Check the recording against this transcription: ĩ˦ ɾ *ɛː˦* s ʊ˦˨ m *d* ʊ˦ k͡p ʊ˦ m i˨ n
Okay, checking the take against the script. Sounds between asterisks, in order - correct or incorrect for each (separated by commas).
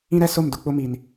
incorrect, correct